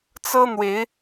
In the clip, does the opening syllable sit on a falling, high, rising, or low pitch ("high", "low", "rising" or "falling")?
high